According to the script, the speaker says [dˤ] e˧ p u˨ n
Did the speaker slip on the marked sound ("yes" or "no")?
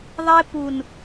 yes